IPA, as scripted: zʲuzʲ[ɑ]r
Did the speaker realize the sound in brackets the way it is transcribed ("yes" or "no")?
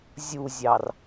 yes